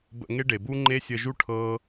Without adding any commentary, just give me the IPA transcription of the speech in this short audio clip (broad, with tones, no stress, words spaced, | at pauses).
bə̰˧ŋe˦ɖe˨bu˦ ŋ͡ǃe˦sʲə˧ʒu˦ ʈʰɤ˦